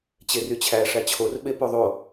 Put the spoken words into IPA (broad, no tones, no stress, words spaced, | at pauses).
t͡ɕeryt͡ɕʰæ ʂæt͡ɕʰor ɓepoðˤo